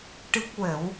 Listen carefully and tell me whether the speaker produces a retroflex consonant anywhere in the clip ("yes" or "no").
yes